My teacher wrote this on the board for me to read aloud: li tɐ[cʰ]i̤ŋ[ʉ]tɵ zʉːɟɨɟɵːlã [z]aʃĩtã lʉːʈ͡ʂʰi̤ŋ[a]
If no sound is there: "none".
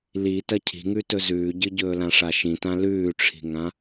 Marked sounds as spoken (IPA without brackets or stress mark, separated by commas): cʰ, ʉ, ʂ, ã